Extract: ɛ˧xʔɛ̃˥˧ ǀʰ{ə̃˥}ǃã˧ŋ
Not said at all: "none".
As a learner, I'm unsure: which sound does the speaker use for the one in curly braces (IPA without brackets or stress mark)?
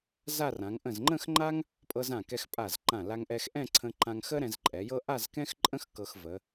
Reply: ə̃˧